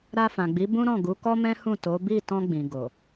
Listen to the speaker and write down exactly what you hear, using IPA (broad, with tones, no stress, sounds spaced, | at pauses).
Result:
ɾ a˧ f ã˨ ɡ͡b i˨˦ b ũ˦ ɾ ɔ̃˦˨ ɡ u˨˦ k ɔ˦ m ɛ̃˦ h ũ˦˨ t o˨˦ b i˦˨ t ɔ̃˧ ɡ͡b ĩ˨ ɡ o˨